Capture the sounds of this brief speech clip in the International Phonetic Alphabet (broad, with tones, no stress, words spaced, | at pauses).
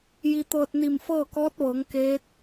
ji˧t̪ɤː˧t̚ni˧˩m fɤː˥˨kɔː˧˥t̚ʋɤː˩˧ŋ keː˧˥t̚